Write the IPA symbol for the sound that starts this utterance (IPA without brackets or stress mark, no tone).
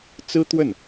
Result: t͡s